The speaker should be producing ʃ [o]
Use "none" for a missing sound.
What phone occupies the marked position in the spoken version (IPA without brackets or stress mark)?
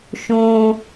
õ